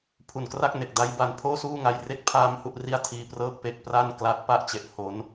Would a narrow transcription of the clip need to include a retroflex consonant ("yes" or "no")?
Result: no